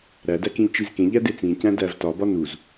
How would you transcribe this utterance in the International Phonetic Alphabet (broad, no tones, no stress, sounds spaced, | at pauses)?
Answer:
ɾ æ d æ k ĩ ʎ t͡ʃ i z k ẽ ʎ æ d e t͡s ĩ c æ̃ d æ v t ɒ b ɒ n u z